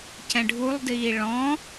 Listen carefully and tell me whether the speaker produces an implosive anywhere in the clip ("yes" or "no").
no